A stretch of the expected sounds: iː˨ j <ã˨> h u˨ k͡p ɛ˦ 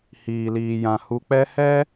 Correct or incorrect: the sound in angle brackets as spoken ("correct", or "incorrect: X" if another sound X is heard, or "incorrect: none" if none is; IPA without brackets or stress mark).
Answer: correct